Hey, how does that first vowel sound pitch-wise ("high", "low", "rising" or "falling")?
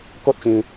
high